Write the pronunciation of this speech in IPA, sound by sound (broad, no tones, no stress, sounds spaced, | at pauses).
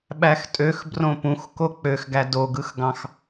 ɓ æ x tʼ ø x b r õ p ũ x k o k͡p ø x ɡ æ d o ɡ ɯ x ɡ ɑ̃ x